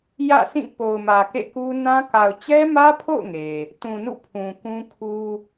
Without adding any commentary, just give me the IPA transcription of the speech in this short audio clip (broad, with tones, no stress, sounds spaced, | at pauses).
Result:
j ä̰˦˨ s ĩ˦˨ p o˨ ʊ̯ m ä˨ k ḛ˦˨ k u˦ n ã˦ k a˨ ʊ̯ t͡ɕ ɛ˦ m ä˦ pʰ o̰˦˨ ʊ̯ ŋ e˨ | t ũ˨ n ṵ˦˨ pʰ ũ˨ k ũ˦ kʰ u˦